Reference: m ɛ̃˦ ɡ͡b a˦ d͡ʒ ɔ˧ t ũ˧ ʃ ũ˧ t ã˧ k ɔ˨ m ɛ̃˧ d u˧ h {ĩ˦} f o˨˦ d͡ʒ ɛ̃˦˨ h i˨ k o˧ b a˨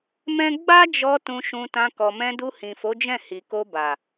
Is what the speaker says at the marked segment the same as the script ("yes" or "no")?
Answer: no